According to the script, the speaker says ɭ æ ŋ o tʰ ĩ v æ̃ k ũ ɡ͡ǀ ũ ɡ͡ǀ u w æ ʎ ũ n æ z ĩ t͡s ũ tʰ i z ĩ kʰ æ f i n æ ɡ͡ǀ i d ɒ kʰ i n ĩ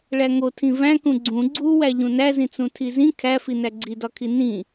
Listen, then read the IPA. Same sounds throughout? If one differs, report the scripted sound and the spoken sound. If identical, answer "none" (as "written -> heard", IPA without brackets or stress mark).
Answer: none